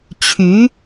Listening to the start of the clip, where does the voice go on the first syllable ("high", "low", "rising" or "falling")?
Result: rising